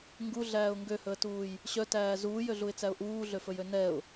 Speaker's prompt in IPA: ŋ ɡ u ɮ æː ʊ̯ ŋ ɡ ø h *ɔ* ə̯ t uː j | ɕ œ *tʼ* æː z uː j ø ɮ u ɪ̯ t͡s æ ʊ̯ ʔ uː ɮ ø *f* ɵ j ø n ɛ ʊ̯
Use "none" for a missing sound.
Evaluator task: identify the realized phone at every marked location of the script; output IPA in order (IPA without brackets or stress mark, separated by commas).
ɵ, t, f